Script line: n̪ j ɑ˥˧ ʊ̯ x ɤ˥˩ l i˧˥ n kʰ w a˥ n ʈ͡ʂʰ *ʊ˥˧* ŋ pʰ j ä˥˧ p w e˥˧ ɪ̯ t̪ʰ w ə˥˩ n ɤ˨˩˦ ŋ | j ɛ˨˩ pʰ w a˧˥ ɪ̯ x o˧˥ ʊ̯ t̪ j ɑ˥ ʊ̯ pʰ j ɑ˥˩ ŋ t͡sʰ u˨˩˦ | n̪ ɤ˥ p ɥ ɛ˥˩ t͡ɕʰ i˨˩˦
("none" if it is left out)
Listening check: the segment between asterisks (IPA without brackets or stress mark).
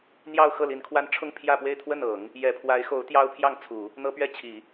ʊ˥˧